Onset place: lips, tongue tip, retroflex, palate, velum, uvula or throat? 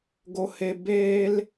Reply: velum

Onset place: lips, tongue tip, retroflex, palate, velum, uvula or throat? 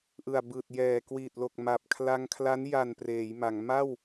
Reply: throat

